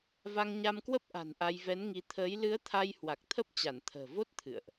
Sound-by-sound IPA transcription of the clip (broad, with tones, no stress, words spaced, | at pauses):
va˧ŋɲa˧mkwə˦˥p̚ʔa̤˨˩n ʔa˧jvɛ˨˦nŋi˧ t̪ʰəː˨˦j lɨ˨˦ə̯t̪ʰa˧j hwa˨˩k̚t̪ʰə˦˥p̚t͡ɕa˧˩n t̪ʰə̤ː˨˩vo˦˥t̚ t̪ʰɨ̰˧˨ə̯ʔ